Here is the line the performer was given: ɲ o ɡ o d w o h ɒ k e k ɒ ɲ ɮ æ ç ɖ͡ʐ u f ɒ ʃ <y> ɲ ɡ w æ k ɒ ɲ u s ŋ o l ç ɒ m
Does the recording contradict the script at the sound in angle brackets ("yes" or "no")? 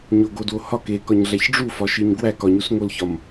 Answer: yes